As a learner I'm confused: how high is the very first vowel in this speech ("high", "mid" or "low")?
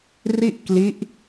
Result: high